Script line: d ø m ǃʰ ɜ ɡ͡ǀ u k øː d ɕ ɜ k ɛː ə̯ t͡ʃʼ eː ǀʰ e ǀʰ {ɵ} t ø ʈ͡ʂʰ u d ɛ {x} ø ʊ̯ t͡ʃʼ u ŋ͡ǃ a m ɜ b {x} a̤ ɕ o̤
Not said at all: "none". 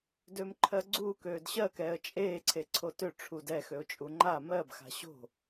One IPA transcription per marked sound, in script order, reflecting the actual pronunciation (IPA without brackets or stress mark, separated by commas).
o, x, x